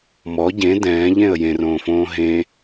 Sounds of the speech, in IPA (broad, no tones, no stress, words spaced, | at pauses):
mɔ ɟẽ dɛ̃ːʎẽə̯ jẽrõːfõː ɦẽ